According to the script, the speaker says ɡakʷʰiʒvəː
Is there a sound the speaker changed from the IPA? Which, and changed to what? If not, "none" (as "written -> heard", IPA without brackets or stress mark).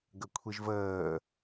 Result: a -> ə